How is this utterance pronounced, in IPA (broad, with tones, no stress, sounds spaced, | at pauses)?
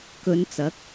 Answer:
k ɵ˨˧ n t͡s ɐ˨˥ k̚